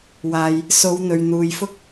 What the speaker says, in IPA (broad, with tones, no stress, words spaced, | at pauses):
waː˨j | so˨˧wn̪ɵ˨ɥn̪uː˨jfʊ˥k̚